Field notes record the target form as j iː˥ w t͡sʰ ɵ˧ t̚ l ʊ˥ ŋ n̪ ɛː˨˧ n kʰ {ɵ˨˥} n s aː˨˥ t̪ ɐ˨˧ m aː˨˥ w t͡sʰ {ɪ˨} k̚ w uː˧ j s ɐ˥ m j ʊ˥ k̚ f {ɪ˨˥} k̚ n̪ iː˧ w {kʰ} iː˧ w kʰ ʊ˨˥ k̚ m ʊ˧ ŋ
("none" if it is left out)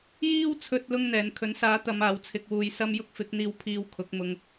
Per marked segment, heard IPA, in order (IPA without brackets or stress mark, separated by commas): ɵ˨˥, ɪ˧, ɪ˨˥, pʰ